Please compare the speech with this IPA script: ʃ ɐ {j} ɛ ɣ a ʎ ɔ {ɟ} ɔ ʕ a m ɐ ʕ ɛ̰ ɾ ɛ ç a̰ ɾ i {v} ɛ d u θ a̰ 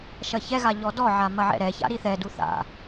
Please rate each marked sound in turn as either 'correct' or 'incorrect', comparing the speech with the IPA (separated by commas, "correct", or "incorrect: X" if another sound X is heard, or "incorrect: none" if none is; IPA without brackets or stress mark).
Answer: incorrect: ç, incorrect: d, incorrect: θ